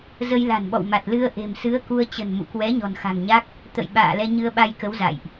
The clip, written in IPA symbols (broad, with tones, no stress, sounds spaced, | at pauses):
z ə˧ j l a̤˨˩ n ɓ ɔ̰˧˨ w m a˨˩ t̚ l ɨ˧ ə̯ ʔ e̤˨˩ m s ɨ˨˦ ə̯ k u˧ ə̯ t͡ɕ ə̤˨˩ n m ṵ˧˨ k w ɛ˨˦ ɲ ɔ̤˨˩ n x a̤˨˩ ŋ ɲ a˦˥ k̚ | t̪ ə̰˧˨ j ɓ a̰ː˧˨ l ɛ˧ ɲ ɨ˧ ə̯ ɓ a˧ j k ə˨˦ w z a̰˧˨ j ʔ